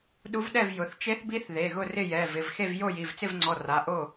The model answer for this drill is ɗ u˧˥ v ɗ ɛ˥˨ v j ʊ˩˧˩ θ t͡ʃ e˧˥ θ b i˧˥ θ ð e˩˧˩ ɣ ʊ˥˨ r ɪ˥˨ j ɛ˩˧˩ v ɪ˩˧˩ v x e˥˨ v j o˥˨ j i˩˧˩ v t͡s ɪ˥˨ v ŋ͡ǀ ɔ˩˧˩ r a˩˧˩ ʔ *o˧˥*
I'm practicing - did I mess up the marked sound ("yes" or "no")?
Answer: yes